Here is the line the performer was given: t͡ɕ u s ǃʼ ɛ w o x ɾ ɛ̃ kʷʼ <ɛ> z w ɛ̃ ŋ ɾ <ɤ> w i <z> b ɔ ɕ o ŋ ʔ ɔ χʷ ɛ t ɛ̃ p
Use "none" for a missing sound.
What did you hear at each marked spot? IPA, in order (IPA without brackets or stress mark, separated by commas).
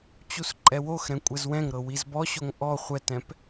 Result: ɛ, ɤ, z